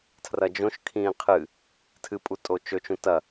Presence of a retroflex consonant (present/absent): absent